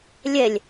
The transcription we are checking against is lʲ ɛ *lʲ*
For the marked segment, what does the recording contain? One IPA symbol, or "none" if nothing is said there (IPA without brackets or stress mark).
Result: lʲ